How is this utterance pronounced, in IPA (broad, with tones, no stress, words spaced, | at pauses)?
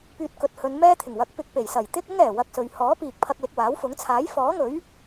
pyː˧t̚kɵ˨t̚hɵ˨˧nmɛː˥ t̪ʰɪ˨˩ŋwɐ˨˥k̚ pɪ˧k̚pe˨˩jsɐ˨˩j t̪ɪ˥k̚ʊ˥ŋɛː˨˩ wɐ˧k̚sɵ˨ɥ hɔː˨˥piː˨k̚pʰɐ˧k̚ lɪ˧k̚waː˨˥wfʊ˨˥ŋ t͡sʰaː˨˥jfɔː˨˥ŋɵ˨˥ɥ